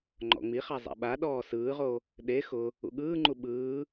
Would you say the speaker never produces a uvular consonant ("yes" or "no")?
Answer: no